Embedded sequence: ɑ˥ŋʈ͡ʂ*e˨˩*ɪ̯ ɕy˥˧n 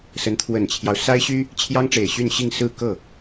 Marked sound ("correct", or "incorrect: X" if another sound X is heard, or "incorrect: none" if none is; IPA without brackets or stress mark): correct